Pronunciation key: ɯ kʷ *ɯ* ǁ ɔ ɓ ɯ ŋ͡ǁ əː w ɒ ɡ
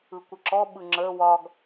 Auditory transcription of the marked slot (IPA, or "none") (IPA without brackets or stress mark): ə